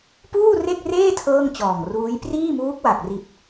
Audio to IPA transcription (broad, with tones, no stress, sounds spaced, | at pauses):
p uː˥˩ r e˥˩ k̚ r eː˥˩ tʰ ɤː˥˩ ŋ t͡ɕ ɔː˨˩ ŋ r uː˦˥ j p r iː˥˩ m uː˦˥ k̚ w a˨˩ k̚ r i˨˩ t̚